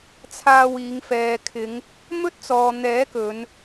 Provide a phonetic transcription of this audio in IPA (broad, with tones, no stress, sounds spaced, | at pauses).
t͡sʰ aː˧ w iː˨˧ ŋ f ɛː˨ kʰ ɪ˨˧ ŋ | m ɵ˥ t̚ t͡s ɔː˨ n̪ ɛː˨˥ k ɵ˨˧ n